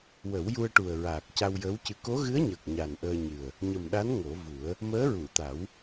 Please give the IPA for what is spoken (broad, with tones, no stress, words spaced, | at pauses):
wə˨˩˦wju˧ə̯ʈu˨˩ə̯ɹaː˨˩k̚ ca˧wjəː˧˥wcɨ˧ ko˧˥ɣɨ˧˥ə̯ɲəː˨˩k̚ ɲa˨˩nʔəː˧ɲɨ˨˩ə̯ | ɲə˨˩mɗa˧˥n ŋo˨˩˦vu˨˩˦ə̯ | məː˧˥ɹu˨˩˨t̪a˨˩˦w